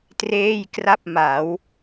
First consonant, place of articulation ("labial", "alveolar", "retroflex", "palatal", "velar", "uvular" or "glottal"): alveolar